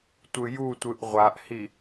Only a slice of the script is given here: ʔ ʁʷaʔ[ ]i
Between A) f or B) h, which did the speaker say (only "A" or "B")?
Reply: B